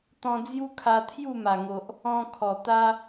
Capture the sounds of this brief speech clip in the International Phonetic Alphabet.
t̪ ɔ̃˧ d͡z j u˦ kʰ a˧ t̪ʰ j u˥˧ m a˨˩ ŋ o˨ ʔ | ɔ̃˧ kʰ ɔ˨˩ t̪ a˦

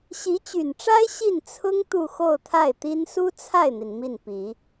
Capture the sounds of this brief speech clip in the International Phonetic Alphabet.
ɕ i˧˥ t͡ɕ y˨˩ n ʈ͡ʂ a˥ ɪ̯ ɕ i˥˩ n t͡sʰ ʊ˥ ŋ t̪ u˥˧ x o˥˧ ʊ̯ t̪ʰ a˥˩ ɪ̯ t̪ i˥ n s u˥ t͡sʰ a˥˩ ɪ̯ n̪ i˩ n m i˥˩ n p i˨˩˦

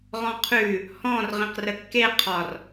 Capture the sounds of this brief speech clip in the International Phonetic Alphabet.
ʁ ɔ̃ qʰ ʉ | h ɔ̃ r ʁ ĩ q r ə kː e qʰ ɒ r

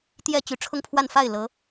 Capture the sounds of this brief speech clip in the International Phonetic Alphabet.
t̪ j ɛ˥˩ t͡ɕ y˧˥ ʈ͡ʂʰ ʊ˥˧ ŋ pʰ w a˥˧ n f a˥˩ ɪ̯ l ɤ˧˥

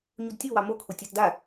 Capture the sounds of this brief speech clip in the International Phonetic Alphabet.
ɲ u d tʲ o w ɑ m o kʰ o tʲ a t d a

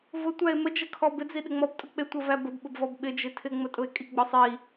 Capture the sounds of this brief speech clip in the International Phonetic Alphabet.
v ʊ tʷ æ e̯ m ə d͡ʒ ə kʰ ɔ b ɪ d͡z i ɗ ɪ ŋ͡m ɔ b tʼ ʊ k͡p ɪ tʷ ə v æ b ə b ɓ ʊ b v ɔ b ɓ ɪ d͡ʒ ɪ tʰ ɪ ŋ͡m ə tʼ ʊ e̯ kʼ i ɡ͡b ɔ sˤ i

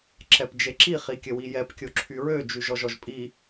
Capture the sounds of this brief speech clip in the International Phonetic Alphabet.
ǁ ɛ p d͡ʒ e ǁ i χ i kʲ ə w i j ɛ p kʲ o ǁʰ y ɹ ø d͡ʒ y ʒ ɔ ʒ ɔ ʒ pʼ i

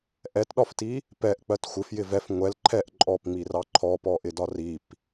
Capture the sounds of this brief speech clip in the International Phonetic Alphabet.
ʔ ɛ t ɗ ɒ f t i | p ɛ ʔ k͡p ɜ t xʷ ɪ f j ɪ v ɛ f ŋʷ ɛ l ǃʰ ɛ ʔ ǃʼ ɔ p ŋ͡m i r ɑ ǃʰ ɔ p ɔ ʔ ɪ d ɒ r i p

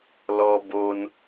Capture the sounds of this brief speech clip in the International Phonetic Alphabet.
l ɔ˦ b o˦ n

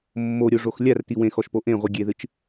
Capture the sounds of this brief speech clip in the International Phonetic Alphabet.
mː o ɾʲ o ʐ o x lʲ a r t i w ẽ x ɔ ʃ p o ʔ ẽ ʁʷ ɨ ɡʲ e ð ɨ t͡ʃ

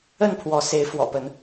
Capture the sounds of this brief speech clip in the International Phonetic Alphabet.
ə˥˨ n pʰ w ɔ˨˦ s e˨˦ ɪ̯ f w ɔ̰˨˩ p ə˨˦ n

